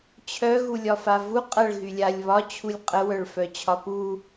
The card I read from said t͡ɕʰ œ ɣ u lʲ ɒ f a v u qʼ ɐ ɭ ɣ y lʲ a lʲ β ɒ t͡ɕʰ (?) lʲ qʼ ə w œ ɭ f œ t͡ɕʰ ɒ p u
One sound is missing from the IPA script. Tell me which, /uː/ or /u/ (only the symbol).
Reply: u